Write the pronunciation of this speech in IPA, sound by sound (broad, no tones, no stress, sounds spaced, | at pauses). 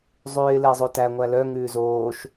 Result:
zˤ ʉː ɪ̯ l ɛ zˤ o t æ ŋʷ æ l œ ŋ ʉː z oː ʃ